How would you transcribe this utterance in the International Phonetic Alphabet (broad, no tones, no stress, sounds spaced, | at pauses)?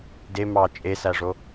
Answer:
d e m ɑ t͡ʃʼ e s æ ʐ o